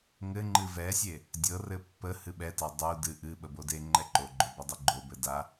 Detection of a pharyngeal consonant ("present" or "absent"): absent